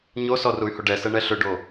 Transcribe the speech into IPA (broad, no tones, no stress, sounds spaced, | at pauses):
ɲ o s ɔ r u y̯ h o ɖ ɛ s ɛ ɳ ɛ ɬ ʏ ɖ o